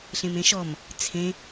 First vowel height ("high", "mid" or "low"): mid